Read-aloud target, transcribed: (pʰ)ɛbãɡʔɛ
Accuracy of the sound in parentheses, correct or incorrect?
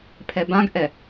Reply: correct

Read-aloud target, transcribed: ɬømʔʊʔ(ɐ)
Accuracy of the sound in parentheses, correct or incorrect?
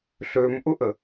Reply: incorrect: ə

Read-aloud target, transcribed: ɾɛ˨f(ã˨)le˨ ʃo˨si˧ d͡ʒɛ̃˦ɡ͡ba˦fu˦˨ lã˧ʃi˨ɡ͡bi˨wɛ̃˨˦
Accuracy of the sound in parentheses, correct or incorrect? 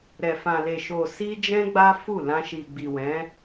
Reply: correct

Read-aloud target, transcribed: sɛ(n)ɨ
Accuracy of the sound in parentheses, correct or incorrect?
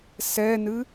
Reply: correct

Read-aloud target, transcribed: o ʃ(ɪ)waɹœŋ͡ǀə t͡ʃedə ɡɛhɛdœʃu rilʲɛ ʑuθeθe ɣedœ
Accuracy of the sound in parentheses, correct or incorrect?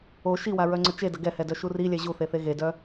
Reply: incorrect: i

